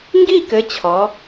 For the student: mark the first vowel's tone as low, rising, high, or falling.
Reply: falling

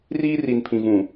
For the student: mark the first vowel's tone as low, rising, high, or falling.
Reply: high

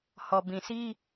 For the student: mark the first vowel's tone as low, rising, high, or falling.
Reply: low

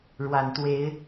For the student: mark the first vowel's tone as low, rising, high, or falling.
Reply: low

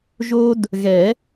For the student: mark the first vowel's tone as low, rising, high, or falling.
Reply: high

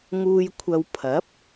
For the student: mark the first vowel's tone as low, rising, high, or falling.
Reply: low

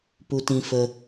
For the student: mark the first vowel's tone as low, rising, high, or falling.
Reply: high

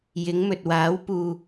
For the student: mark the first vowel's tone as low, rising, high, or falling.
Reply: rising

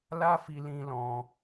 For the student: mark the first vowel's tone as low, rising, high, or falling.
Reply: high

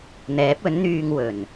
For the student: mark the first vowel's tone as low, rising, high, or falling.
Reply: rising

